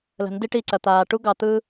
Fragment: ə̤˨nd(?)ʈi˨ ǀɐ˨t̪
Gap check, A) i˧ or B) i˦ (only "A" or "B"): A